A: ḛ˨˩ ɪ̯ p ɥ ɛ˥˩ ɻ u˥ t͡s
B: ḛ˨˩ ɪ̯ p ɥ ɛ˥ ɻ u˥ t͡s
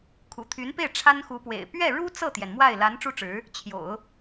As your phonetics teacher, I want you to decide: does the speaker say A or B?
A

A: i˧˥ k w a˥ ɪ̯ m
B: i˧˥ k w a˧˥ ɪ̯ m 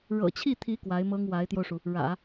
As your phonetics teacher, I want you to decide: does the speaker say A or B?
B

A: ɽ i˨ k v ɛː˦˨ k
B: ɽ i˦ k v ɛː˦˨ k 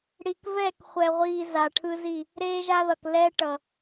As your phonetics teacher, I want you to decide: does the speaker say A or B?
A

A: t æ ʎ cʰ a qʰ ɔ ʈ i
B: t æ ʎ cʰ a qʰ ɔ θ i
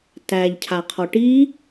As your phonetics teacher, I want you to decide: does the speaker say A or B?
A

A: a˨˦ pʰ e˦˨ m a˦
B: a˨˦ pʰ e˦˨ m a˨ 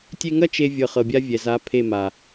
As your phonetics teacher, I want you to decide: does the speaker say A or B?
B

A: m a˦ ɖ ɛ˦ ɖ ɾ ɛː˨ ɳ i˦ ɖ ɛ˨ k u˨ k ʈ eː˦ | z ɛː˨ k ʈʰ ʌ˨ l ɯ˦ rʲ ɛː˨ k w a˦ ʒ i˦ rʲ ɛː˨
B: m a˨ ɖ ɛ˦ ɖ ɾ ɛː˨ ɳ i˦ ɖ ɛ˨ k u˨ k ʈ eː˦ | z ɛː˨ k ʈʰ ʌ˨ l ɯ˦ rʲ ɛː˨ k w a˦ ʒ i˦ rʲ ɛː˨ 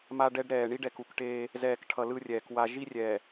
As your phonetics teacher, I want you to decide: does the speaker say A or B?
A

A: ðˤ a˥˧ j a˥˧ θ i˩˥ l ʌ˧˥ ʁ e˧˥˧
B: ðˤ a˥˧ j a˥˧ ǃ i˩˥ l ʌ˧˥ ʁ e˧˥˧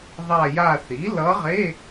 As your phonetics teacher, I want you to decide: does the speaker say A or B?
A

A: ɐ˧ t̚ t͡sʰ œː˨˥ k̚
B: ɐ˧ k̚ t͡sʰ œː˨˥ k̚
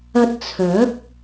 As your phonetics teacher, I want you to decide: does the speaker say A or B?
A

